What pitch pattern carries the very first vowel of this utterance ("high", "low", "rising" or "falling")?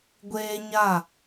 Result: high